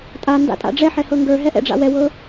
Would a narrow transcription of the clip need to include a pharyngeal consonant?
yes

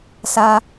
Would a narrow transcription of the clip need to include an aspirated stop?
no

